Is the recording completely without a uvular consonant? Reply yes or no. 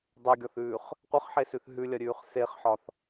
no